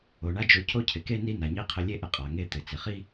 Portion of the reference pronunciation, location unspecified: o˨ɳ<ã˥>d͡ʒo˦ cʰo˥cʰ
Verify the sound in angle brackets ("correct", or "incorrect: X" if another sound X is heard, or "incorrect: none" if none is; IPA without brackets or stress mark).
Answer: incorrect: a˥